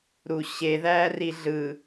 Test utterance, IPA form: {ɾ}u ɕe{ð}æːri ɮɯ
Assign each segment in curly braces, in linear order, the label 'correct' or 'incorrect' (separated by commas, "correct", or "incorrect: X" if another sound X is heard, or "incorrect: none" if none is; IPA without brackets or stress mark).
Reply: correct, correct